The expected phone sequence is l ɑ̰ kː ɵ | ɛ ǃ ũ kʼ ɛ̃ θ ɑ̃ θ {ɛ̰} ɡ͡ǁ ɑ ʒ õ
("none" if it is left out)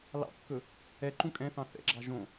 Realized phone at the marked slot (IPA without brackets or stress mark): ɛ̰